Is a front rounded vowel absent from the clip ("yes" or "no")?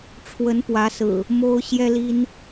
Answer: yes